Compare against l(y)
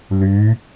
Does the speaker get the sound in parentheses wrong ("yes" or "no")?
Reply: no